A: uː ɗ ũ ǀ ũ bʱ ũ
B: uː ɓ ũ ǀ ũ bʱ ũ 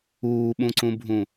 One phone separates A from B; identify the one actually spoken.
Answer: B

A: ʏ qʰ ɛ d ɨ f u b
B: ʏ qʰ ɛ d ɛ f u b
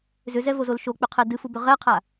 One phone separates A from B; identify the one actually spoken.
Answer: A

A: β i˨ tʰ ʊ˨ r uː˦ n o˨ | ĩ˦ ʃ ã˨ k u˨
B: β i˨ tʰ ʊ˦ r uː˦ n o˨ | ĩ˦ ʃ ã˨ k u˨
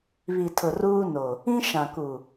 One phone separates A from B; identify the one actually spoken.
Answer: A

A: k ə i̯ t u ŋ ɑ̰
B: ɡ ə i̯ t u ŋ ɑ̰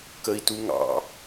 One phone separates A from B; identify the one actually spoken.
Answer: A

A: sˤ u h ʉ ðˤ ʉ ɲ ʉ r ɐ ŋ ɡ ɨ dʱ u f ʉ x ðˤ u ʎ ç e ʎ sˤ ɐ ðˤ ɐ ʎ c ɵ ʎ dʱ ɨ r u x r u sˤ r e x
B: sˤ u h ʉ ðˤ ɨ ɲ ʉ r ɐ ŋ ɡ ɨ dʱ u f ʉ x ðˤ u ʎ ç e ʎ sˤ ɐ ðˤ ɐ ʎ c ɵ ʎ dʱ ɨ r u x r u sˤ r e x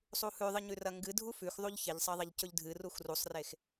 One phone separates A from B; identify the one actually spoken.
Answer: B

